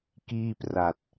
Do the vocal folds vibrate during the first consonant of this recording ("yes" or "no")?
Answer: no